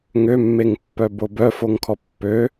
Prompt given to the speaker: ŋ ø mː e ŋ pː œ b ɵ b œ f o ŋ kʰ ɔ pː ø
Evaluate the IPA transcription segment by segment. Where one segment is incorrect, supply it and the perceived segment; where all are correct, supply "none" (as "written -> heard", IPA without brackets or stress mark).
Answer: ɵ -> o